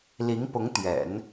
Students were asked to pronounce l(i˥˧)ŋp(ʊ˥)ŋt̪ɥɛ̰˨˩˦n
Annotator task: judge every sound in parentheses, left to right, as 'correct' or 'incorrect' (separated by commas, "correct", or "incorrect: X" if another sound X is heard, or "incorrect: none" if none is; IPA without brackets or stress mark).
incorrect: i˧˥, incorrect: ʊ˧˥